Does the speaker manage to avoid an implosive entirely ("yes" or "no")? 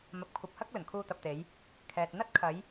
yes